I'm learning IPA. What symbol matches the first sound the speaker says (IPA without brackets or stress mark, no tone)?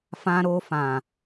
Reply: f